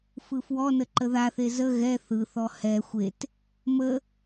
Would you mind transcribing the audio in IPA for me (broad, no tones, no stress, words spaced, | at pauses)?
fɯfwɔnə ǃəðaθe zə ɣɛ θɯθɔ hɛ xʷet | mə